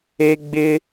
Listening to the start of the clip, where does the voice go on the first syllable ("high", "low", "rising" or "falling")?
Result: high